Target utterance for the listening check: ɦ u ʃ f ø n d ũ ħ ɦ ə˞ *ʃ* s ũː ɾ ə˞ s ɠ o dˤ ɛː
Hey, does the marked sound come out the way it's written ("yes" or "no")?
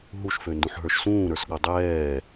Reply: yes